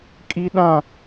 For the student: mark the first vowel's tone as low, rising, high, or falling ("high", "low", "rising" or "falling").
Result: high